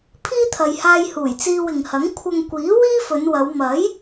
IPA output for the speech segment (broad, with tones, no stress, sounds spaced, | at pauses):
pʰ iː˥ t̪ʰ ɐ˨ j h aː˧ j h uː˨˩ j t͡s iː˧ w ɪ˨ ŋ h ɐ˨˥ ŋ kʷʰ ɐ˧ ŋ kʷ iː˨˥ w iː˥ f ɵ˨˧ n w ɐ˨˧ w m ɐ˨˥ j